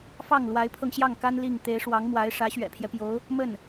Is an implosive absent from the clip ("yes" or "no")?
yes